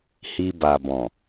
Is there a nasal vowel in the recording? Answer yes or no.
yes